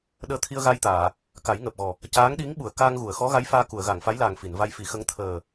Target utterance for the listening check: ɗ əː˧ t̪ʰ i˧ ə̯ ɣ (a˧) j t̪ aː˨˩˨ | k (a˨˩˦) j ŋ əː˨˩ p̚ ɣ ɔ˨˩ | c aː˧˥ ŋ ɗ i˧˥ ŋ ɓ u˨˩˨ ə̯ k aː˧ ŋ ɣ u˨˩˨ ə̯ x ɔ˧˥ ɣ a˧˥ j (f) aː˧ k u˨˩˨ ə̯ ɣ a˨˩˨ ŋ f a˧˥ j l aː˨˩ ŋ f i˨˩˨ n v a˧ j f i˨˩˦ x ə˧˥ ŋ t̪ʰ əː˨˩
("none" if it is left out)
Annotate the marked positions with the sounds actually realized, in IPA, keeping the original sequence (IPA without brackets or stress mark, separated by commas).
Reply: a˧, a˨˩˦, f